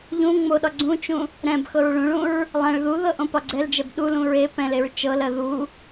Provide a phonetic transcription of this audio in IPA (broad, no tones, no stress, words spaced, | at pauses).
ʎũ ŋ͡moɗɒ ɡ͡ǀũt͡ʃũ | ɾɛ̃b xɤɹɭũɭũɹ | lˠɛ̃ɭ ðuðɤ ʔõpɒɡ͡ǀɛld͡ʒɛb ɗulũɹ e pɛ̃leɹ t͡ʃɤlɜ ðu